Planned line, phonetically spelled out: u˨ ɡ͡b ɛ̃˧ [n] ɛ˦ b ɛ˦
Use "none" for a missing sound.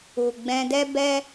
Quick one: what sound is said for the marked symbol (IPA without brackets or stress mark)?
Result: d